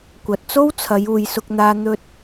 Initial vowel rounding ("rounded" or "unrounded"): unrounded